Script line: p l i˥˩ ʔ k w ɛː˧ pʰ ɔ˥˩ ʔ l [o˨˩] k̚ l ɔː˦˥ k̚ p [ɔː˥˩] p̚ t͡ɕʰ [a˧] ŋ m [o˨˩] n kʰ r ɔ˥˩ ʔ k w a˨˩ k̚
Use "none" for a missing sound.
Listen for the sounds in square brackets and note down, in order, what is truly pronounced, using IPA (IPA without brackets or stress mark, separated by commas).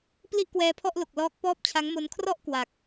o˨˩, ɔː˥˩, a˦˥, o˦˥